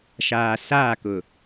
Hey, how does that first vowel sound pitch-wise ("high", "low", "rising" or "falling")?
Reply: low